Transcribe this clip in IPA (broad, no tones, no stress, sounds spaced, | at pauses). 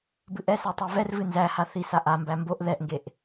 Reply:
b ɨ ʔ ɛ s ɛ tˤ e v ɛ r v ɨ n z æ h a θ i s a ʔ a m b æ m b o ʔ ð ɛ ʔ ŋ ɡ e ʔ